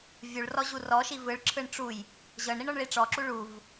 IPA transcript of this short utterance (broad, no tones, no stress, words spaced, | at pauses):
vʲuɭrɔʑu rɔʃi vɯɭǁʰɯɳ ʈ͡ʂuj | ʑɤɳɾiɳɔɳɭi ʈ͡ʂɔǁu ɭuv